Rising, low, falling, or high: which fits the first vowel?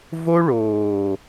high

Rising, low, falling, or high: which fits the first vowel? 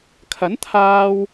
rising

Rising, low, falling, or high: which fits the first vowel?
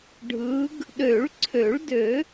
rising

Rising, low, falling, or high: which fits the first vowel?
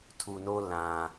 low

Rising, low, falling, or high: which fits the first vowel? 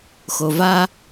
low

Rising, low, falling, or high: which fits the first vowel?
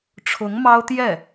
rising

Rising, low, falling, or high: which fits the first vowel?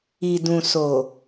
low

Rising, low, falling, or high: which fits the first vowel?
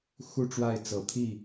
falling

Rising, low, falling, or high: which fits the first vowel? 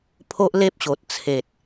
high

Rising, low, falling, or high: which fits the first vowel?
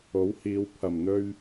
rising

